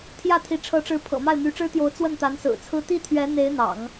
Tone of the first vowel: falling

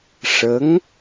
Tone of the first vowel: rising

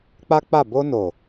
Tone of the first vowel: high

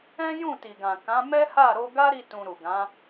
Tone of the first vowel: high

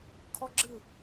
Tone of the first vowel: high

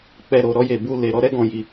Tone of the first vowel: low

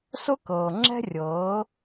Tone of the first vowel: high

